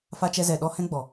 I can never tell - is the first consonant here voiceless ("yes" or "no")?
yes